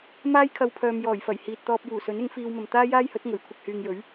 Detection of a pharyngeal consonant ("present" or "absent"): absent